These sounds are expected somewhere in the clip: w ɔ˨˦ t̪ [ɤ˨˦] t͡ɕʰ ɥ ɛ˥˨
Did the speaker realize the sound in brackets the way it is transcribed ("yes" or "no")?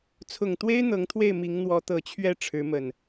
no